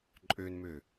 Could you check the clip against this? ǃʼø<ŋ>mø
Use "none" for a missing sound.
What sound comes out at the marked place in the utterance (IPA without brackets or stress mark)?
n